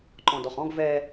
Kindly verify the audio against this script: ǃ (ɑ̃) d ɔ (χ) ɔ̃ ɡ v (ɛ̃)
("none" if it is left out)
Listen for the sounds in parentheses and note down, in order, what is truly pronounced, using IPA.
ɔ̃, χ, ɛ

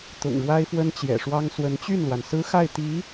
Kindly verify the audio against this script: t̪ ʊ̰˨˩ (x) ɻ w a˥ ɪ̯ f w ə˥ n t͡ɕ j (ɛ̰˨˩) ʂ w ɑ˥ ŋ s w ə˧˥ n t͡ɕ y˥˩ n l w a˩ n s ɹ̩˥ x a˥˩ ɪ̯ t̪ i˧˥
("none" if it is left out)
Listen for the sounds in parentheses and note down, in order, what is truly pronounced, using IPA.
ŋ, ɛ̰˨˩

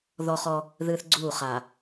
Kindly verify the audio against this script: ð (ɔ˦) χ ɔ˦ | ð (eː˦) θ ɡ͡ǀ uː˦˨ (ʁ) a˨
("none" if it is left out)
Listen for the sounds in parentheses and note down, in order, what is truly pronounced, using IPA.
ɔ˦, ɨː˦, χ

